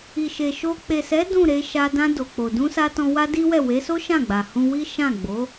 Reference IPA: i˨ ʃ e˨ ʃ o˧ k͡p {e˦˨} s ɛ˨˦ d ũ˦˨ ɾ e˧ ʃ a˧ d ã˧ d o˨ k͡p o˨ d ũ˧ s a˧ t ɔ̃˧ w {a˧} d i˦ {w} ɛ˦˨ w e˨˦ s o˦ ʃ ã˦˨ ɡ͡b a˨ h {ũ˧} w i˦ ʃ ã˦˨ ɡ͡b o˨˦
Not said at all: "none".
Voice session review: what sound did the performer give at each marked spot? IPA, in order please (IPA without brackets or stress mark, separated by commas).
e˨, a˦, w, ũ˧